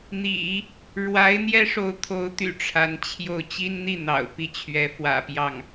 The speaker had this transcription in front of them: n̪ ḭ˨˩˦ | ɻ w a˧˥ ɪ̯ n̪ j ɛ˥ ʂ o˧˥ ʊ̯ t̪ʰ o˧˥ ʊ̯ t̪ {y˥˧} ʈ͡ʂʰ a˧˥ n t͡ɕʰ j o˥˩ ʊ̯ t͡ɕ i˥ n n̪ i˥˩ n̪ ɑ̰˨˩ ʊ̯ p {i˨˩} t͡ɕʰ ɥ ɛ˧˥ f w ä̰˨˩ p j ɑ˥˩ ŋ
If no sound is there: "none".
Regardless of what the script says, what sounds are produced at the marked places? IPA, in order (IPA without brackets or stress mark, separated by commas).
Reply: y̰˨˩, i˥˩